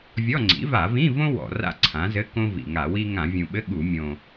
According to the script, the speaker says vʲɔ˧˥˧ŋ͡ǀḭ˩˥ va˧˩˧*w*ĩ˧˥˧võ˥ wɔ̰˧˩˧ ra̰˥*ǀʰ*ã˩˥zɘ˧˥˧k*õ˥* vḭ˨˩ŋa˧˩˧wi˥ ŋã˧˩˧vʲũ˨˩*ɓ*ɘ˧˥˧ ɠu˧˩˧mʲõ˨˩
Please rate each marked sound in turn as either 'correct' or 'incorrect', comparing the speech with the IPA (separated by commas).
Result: incorrect, correct, correct, correct